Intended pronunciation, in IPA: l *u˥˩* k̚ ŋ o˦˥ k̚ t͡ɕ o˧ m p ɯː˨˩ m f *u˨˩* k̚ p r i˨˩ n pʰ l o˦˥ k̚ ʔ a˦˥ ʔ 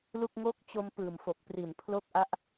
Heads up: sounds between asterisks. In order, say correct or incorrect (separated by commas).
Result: correct, incorrect